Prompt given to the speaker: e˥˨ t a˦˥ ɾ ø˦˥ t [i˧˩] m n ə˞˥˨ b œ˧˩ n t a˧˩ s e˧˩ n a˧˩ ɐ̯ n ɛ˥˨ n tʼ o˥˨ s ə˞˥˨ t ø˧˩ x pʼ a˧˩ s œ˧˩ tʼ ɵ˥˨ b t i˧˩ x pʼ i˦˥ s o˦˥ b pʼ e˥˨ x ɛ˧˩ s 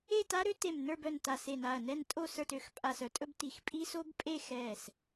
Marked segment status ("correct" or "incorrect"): incorrect